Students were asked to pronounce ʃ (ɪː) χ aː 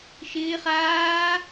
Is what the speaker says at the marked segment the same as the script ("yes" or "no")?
yes